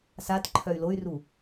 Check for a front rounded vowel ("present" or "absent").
present